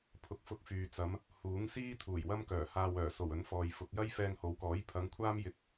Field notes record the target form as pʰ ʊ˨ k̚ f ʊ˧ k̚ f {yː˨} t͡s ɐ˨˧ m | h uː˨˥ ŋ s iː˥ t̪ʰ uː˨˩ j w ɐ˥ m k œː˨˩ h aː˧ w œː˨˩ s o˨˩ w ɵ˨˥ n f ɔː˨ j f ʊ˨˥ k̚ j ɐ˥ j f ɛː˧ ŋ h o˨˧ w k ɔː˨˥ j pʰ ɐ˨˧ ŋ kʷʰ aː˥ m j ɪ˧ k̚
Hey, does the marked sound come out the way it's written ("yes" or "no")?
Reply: yes